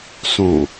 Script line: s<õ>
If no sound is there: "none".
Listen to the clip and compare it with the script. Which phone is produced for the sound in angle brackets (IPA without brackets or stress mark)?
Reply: õ